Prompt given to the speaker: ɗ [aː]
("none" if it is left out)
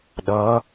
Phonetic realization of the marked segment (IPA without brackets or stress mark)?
ʌː